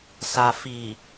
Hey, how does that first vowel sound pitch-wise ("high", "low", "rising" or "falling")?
low